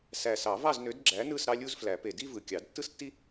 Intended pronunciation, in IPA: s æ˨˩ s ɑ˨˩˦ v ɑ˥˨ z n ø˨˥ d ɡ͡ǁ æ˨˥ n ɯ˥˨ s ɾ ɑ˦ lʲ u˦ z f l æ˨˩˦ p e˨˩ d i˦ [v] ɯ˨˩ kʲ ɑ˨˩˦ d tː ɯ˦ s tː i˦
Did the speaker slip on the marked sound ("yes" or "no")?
no